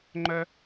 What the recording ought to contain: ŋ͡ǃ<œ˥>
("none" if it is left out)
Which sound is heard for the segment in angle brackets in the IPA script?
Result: œ˥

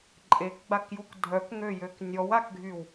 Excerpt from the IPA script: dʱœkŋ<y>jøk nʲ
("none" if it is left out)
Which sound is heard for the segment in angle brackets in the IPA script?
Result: ø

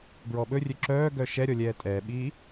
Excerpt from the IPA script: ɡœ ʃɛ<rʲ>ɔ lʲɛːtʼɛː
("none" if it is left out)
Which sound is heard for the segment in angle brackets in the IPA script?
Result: ɾʲ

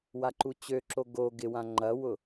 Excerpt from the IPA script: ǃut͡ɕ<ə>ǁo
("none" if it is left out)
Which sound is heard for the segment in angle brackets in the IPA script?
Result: ø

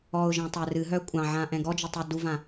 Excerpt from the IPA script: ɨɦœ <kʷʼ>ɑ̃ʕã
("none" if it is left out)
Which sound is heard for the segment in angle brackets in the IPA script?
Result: kʷʼ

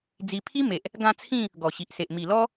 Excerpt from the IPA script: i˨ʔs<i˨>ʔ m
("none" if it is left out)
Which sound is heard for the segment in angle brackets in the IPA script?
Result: e˨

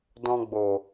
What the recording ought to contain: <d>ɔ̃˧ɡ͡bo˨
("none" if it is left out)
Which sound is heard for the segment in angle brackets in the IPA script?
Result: d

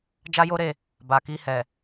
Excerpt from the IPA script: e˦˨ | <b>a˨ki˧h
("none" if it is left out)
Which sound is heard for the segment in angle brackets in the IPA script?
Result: b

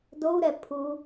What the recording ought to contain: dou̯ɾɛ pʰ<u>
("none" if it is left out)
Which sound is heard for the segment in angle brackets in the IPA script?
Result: u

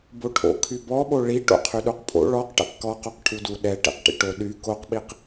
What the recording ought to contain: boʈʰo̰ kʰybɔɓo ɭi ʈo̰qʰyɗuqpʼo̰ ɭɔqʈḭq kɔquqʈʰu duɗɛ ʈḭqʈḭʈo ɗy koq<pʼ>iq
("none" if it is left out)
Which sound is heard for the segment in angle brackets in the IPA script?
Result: ɓ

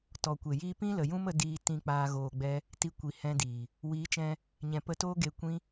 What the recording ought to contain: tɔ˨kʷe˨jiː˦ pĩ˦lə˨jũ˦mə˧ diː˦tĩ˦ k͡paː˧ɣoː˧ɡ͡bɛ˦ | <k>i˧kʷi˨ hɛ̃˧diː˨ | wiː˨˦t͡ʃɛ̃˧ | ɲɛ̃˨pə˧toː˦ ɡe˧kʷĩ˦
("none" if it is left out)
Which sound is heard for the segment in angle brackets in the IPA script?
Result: t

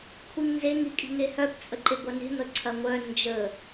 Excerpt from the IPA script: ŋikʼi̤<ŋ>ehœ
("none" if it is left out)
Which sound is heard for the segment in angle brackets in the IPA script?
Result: ŋ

